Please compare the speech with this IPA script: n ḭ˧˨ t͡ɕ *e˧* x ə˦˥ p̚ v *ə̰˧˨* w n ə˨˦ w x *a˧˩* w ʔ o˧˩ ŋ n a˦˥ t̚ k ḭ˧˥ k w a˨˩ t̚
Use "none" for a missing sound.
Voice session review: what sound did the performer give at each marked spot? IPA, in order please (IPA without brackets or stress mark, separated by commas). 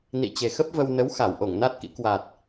e˨˩, ə˧, a˧˩